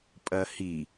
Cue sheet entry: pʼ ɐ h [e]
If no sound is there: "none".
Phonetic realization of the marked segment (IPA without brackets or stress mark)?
i